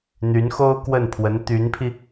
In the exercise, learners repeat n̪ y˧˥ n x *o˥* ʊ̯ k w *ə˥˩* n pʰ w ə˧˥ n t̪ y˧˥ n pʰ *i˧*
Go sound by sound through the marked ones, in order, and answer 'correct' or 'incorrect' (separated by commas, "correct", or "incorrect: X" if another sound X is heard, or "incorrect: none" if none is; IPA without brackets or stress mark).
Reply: correct, correct, correct